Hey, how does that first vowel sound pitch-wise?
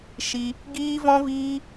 high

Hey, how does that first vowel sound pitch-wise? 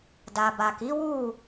low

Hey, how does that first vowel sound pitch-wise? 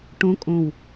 rising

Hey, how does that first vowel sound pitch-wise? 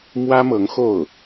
high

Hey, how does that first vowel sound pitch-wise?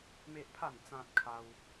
high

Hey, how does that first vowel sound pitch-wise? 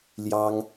high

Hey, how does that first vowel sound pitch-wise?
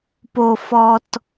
low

